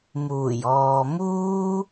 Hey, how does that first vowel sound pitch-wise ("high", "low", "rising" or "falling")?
low